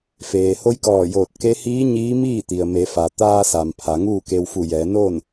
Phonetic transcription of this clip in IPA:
feː˩ ho˧˥jkɔː˧˩joː˧˩t̚ ke˧˥ hiː˧˥ ɲiː˧˥miː˥˨ t̪i˩ə̯me˩˧fa˩ t̪aː˧sa˩m pʰa˩˧ŋuː˥˨ke˧w fu˧˩jɛː˩˧noː˥˨n

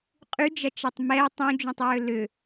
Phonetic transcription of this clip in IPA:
qʼyd͡ʒɐt͡ʃɛtˤ mɛɪ̯ tˤũd͡ʒũtˤɹø lʏ

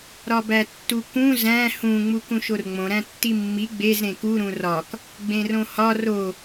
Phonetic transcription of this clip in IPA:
ɾɒbætːukũ zæ̃ hũ ŋ͡mukũʃorŋ͡mõ ɾæ̃tːimːi ɡ͡bez ɾẽku ɾũrɒk | ɡ͡bẽrõhɒ ro

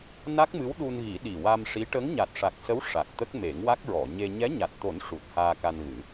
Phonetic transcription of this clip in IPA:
na˦˥k̚mɨ˧˥wɗu˧nɣi˨˩˦ ɗi˨˩wa˧mʂi˧˥ ʈə˧˥ŋɲa˨˩t̚ʂa˨˩k̚sə˧˥w ʂa˨˩k̚ t̪ə˦˥k̚ me˨˩˦ŋwa˦˥k̚ɹɔ˨˩˨ ɲe˧ ɲɛ˧˥ɲa˨˩t̚t̪o˨˩˦n ʂu˨˩t̚ haː˧ka˧nɣɨ˨˩˦

